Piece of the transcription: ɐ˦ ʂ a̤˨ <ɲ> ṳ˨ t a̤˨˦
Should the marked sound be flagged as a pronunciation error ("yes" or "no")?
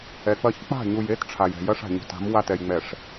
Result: no